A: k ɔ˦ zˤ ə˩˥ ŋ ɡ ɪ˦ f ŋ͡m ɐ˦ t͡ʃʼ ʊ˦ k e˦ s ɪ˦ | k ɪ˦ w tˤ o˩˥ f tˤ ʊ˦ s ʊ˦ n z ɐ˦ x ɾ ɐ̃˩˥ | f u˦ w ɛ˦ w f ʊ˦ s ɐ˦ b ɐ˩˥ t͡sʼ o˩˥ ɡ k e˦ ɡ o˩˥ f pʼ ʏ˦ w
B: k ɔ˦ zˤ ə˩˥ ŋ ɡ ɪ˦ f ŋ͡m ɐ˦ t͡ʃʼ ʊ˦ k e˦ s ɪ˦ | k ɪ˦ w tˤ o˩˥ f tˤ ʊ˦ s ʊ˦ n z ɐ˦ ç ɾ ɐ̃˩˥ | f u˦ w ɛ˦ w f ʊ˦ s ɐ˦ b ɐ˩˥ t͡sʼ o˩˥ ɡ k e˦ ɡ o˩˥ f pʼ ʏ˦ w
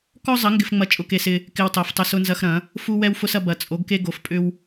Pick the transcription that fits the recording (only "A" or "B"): A